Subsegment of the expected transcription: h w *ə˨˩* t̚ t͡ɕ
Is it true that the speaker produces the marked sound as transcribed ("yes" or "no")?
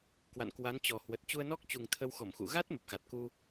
yes